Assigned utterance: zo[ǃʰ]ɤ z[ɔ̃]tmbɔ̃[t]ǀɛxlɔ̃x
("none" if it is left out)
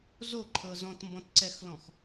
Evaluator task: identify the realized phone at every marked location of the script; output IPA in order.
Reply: ǃʰ, ɔ̃, t

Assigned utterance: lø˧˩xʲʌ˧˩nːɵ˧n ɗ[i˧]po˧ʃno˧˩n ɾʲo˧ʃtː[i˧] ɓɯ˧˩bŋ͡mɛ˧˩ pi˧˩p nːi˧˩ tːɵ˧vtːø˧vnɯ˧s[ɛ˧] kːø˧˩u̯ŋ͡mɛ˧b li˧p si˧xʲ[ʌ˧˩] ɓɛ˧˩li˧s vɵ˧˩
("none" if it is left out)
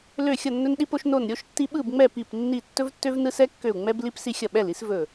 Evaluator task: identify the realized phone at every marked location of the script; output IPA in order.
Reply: i˧, i˧, ɛ˧, ʌ˧˩

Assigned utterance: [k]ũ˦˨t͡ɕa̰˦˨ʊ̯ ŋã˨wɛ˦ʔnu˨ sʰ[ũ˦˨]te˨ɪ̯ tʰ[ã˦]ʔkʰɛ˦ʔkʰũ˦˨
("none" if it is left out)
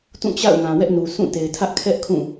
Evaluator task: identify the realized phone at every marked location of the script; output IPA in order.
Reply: t, ũ˦˨, ä˦

